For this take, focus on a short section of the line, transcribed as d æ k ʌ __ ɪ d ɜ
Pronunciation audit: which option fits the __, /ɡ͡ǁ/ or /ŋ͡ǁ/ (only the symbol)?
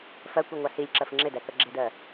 ɡ͡ǁ